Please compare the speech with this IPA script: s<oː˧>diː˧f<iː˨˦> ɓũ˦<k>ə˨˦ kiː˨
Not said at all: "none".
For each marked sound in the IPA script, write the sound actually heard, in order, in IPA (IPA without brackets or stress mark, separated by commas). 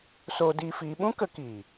oː˧, iː˨˦, k